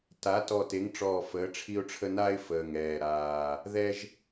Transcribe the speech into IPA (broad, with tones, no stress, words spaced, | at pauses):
ta˨˥ tɔ˧˩te˨˥ŋʈ͡ʂɔː˧˩ fəː˨˥ʈ͡ʂʰi˦ʊ̯ʈ͡ʂʰə˦ na˦ɪ̯ fəː˧˩ŋɛː˧˩ɾaː˧˩ | ðɛ˦ʒ